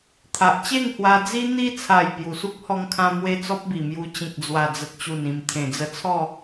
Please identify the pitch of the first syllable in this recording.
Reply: low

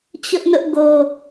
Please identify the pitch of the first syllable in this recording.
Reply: high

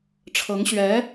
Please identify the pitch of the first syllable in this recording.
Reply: rising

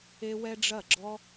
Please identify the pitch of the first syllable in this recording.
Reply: high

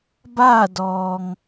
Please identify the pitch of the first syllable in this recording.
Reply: falling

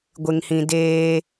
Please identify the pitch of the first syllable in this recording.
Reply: low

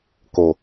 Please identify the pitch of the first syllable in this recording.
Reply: low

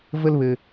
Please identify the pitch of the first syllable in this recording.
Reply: high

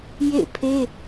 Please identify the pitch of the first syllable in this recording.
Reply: falling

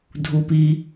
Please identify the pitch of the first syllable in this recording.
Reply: low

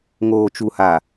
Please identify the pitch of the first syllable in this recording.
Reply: low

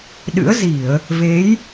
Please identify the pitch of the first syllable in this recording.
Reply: rising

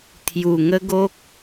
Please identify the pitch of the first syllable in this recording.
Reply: low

